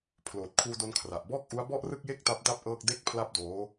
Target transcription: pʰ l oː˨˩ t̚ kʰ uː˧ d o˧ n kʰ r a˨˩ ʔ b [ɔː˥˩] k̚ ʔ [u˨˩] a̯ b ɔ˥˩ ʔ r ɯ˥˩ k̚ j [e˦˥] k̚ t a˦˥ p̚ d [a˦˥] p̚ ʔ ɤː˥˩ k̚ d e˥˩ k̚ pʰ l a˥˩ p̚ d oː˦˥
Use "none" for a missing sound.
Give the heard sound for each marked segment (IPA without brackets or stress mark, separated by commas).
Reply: ɔː˥˩, u˦˥, e˥˩, a˥˩